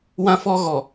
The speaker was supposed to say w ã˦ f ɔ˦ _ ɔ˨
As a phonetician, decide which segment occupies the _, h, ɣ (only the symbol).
ɣ